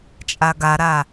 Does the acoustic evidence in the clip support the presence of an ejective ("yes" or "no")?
yes